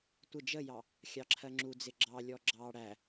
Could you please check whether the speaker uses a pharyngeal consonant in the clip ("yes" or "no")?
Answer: no